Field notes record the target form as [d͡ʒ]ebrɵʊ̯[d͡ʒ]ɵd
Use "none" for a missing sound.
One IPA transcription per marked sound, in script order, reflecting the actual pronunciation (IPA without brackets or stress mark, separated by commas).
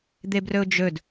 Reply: d̪, d͡ʒ